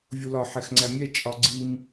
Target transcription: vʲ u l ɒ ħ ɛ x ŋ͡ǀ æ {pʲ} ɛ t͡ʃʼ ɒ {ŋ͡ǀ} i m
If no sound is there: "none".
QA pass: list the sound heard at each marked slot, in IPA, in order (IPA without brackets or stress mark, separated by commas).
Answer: mʲ, ɡ͡ǀ